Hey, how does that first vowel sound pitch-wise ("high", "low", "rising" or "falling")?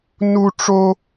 high